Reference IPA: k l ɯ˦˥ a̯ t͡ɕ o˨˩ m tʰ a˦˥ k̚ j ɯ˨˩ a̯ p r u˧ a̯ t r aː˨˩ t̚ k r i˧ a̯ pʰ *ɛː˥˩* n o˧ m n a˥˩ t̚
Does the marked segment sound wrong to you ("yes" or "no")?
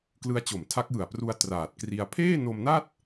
yes